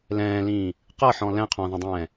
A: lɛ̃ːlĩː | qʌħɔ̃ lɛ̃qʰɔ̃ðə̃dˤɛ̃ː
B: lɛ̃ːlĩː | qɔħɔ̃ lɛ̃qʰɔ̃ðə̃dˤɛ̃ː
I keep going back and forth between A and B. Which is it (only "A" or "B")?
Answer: A